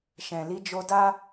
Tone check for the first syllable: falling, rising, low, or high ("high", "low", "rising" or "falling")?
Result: low